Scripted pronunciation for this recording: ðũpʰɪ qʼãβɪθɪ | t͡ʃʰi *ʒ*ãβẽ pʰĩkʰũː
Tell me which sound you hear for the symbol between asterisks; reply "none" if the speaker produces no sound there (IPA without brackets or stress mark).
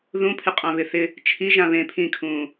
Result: ʒ